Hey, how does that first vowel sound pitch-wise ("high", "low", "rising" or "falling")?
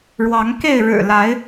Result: rising